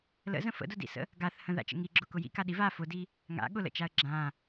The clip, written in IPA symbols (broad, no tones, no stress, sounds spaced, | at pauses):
l ə̰ z ə̃ f ə̰ d ʊ d ḭ s ə̰ | ɡ a θ h ə̃ ð a̰ t͡ʃ ə̰ ŋ i ɡ͡ǁ ʊ k ʊ j ḭ k a ɗ i v a f ʊ d i | ŋ a̰ ɠ ʊ l ə̰ t͡ʃ a ə̯ ɡ͡ǁ ã